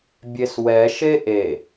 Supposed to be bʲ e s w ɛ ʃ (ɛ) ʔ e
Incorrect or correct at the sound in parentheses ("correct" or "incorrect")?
incorrect